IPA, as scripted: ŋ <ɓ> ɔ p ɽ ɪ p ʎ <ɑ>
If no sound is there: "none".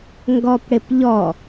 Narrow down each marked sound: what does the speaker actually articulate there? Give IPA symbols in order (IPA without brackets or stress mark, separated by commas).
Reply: ɡ, ɔ